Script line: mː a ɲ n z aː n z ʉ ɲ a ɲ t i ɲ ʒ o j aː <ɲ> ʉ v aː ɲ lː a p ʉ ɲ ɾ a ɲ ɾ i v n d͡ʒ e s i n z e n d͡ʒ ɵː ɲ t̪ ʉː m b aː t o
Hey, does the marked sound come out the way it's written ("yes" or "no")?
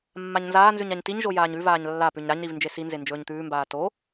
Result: yes